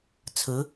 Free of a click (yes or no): yes